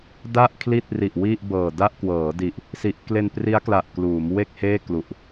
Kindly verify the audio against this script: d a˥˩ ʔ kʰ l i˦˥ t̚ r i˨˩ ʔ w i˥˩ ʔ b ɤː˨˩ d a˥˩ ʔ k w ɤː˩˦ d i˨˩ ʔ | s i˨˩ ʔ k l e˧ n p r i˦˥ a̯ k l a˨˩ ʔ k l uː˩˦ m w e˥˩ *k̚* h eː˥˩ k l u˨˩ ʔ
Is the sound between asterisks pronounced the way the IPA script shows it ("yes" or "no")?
yes